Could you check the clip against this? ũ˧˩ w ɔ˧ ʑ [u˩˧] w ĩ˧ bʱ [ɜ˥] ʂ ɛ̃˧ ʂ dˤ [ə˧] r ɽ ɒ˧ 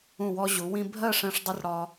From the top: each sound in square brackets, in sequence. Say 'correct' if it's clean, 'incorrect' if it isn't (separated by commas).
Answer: correct, incorrect, correct